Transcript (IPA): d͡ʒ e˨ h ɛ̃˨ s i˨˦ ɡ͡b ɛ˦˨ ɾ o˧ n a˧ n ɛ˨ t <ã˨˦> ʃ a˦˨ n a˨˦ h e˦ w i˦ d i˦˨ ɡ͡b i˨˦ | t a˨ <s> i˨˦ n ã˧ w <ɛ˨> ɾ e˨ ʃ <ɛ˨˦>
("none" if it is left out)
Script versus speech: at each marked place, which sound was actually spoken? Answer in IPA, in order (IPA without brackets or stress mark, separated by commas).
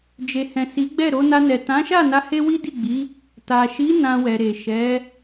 ã˨˦, ʃ, ɛ˨, ɛ˨˦